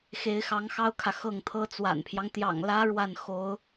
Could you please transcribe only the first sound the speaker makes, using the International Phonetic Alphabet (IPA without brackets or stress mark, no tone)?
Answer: x